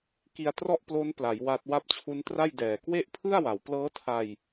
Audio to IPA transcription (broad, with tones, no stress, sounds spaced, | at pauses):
k i˧ a̯ t r ɔ˥˩ ʔ p l o˦˥ n p l a˩˦ j w a˦˥ t̚ w a˦˥ p̚ t͡ɕʰ u˦˥ n t r a˥˩ j d ɛː˨˩ k w e˥˩ ʔ pʰ ɯ˥˩ a̯ w a˩˦ w p l ɤː˦˥ tʰ a˧ j